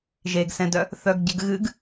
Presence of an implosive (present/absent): absent